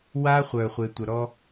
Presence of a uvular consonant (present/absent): present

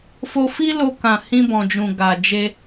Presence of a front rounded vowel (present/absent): absent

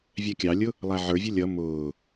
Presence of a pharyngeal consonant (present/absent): present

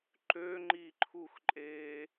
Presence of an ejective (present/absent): present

